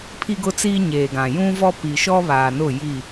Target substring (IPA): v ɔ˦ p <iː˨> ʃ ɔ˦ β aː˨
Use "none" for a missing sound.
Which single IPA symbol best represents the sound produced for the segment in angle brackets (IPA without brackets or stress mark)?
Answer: i˨